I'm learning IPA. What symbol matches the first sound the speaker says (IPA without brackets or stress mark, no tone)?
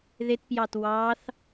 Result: ð